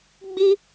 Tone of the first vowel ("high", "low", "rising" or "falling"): high